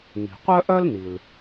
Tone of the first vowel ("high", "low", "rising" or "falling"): low